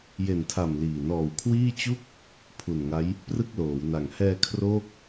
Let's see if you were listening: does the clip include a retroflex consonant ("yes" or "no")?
no